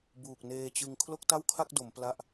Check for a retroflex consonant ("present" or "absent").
absent